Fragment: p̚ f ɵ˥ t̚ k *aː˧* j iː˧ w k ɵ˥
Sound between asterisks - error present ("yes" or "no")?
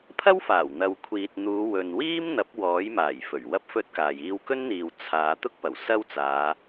yes